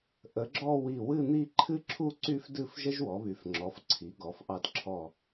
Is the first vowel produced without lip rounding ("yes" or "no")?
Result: yes